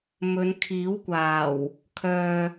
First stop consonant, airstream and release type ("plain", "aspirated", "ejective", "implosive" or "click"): aspirated